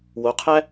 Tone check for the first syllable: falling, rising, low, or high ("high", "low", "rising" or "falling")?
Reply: rising